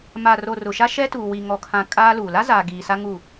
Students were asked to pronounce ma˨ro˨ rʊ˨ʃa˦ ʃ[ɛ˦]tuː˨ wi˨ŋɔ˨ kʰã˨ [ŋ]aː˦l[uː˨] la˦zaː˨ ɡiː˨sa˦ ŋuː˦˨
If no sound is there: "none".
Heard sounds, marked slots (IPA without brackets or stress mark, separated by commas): ɛ˦, kʼ, uː˨